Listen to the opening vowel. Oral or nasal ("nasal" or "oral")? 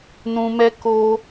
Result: nasal